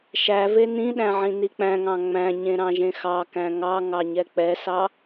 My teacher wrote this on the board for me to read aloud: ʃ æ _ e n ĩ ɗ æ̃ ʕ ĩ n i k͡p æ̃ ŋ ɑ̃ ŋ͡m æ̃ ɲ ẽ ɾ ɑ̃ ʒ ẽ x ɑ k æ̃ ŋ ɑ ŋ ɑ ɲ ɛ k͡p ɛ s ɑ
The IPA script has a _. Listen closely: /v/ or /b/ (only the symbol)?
v